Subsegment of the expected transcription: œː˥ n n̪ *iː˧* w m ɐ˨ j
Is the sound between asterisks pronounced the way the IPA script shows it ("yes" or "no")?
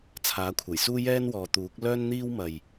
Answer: no